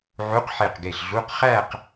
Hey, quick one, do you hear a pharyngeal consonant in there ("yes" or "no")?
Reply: yes